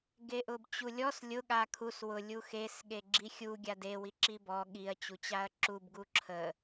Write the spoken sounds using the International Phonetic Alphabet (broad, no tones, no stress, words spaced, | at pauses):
ɡeʔʊbt͡ɕulʲɔs lʲʊ ɠakʰus wʊ lʲuxes ɠeɡ͡ǁixʲu ɡʲade wiǁibɔ ɠiɐ̯ t͡ɕut͡ɕaɐ̯ǁub ɡuǁʰə